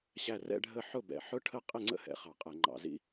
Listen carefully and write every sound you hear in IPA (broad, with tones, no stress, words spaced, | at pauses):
ɕæ˥˩ rɛ̰˥˧ɖʱə˥˩ ħʊ˥˩bɛ̰˨˩ ħʊ˦˥ʈʰə˥˩ qʼɪ˥˩ŋ͡ǀə̰˦˥hɛ̰˨˩ χɑ˧˩˧qʼɛ˧˩˧ŋ͡ǃɑ̰˧˩˧zḭ˦˥